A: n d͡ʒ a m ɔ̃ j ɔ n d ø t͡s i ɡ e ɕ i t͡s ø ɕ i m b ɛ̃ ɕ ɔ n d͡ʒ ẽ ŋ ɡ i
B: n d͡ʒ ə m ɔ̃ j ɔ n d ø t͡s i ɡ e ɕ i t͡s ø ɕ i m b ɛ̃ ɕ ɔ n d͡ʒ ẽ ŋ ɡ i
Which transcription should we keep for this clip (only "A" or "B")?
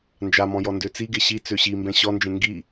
A